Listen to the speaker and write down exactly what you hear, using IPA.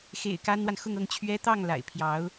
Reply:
xḛ˨˩ɪ̯ ka˥nwa˨n xʊ˥˧ŋ ɤ˥˩ŋt͡ɕʰɥɛ˥ t̪ɑ˥˩ŋ la̰˨˩ɪ̯pʰjɑ˧˥ʊ̯

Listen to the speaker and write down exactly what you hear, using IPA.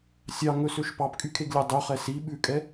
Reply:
sʲɑŋɵsøʃ pɑpkʼykʰeɡlʲæ dˤyχɛ si ɓʉkʼɛ

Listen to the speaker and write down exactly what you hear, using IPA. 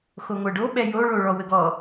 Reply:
xoŋʷɛɖo ɓɛjo ɭoɭɔwəɡɔ

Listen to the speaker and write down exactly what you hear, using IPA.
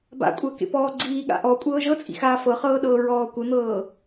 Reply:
ba̰kʷʼəːkḛ pɔːɡ͡ǀiːɠa̰ ʔɔ kʷʼɤːʒɤt͡sʼḭxaː fɤχɤːɗɤː ɹɔːkʷən̪ɤː

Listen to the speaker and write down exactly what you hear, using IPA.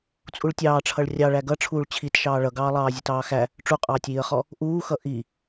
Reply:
t͡sʼuɭtʲɑːʈ͡ʂʰʌɭ rʲɑ ɭæɡʌ ʈ͡ʂʰuːɭt͡ɕʰit ʃɑːɭʌɡɑː lˠɑːzʲutɑːxæ | ʈ͡ʂuqʼɑːtʲiːə̯χɔ | ʔuːxʌ ʔi

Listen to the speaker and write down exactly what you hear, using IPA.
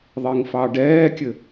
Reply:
ðˤiŋfɑɖɛːkʲɘ

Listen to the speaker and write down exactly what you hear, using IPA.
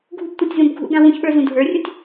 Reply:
ɡʱubtʷətʲzũb ɡʱṵɡã wũçɓə˞ zũdʱə˞rʲutʲ

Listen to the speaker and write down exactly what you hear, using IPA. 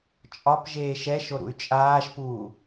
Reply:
t͡ʃʼɒp ʒeːʃɛʃo ɾṵy̯t͡ʃʼaːʃpuː

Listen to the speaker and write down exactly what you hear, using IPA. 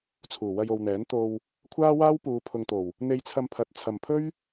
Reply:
t͡sʰuː˨˩wɐ˧jo˨wn̪ɛː˨˥n t̪o˧w | kʷʰaː˥waː˥wpuː˨˧ pʰʊ˨ŋt̪o˨˩w | n̪e˧jt͡sʰɐ˧mpʰɐ˨˥t̚ t͡sʰɐ˨mpʰɵ˥ɥ

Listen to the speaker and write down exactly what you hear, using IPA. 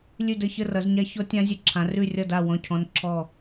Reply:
lʲʉ˥˧də˥˧ çə˥˧rʌ˨˦zɲa˦˥ çɔ˦˥tʲã˦˥zʲʉ˨˦ǁʰã˨˦r ʉ˥˧rʲʌ˥˧da˥˧ wɔ̃˥˧ cʰɔ̃˦˥nǁʰɔ˥˧

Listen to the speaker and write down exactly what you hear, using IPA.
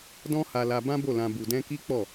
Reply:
dɔ̃˦ha˧la˧ bã˦bo˦˨lã˧ bu˧dɛ̃˦ ki˦k͡pɔ˦˨

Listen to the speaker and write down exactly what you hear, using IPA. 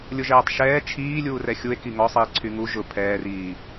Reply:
lʲʊʒɛːtˤʃɛː t͡ʃʰiː lʲuːrɛxʲue̯ kiŋɔsˤiː ǀʰyŋu ʒʊ pʰɛːriː

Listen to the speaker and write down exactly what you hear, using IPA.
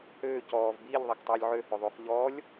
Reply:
høː cɔːv biːʎðˤaktˤuːlʲ ʕøhøðˤuːχ ʎɔːlʲ

